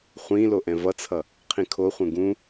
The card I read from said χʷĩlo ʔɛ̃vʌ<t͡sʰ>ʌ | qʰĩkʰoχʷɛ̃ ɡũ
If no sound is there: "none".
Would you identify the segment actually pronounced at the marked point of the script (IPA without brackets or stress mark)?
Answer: t͡sʰ